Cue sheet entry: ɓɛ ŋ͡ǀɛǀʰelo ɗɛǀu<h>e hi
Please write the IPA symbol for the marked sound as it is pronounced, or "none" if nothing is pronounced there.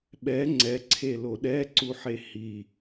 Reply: ħ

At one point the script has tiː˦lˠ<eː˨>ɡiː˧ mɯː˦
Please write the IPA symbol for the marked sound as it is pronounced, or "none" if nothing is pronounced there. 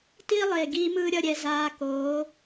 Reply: eː˨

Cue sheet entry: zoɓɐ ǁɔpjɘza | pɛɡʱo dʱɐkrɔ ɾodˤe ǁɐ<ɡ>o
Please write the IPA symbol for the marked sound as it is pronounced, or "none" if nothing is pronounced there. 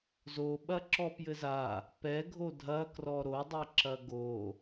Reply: ɡ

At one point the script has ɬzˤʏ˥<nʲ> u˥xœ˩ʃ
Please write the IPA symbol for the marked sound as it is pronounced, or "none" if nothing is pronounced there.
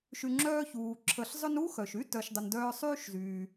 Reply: n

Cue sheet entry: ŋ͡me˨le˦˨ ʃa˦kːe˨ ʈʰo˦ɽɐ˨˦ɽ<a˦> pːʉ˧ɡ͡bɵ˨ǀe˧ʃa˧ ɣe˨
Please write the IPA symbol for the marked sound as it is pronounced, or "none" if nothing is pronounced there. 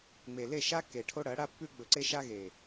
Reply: a˦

